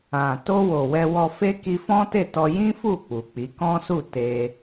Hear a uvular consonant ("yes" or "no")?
no